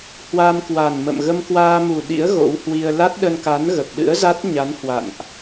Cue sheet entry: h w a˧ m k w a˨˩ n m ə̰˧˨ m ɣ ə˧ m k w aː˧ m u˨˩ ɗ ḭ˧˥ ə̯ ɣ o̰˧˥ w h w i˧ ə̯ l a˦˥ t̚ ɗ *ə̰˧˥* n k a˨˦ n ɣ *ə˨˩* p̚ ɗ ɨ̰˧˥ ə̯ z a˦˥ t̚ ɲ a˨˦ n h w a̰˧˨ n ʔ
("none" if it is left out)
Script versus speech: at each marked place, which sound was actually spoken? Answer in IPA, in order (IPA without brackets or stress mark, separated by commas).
ə˧, ə˨˩